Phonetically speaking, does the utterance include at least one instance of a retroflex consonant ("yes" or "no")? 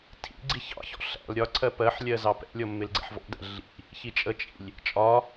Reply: no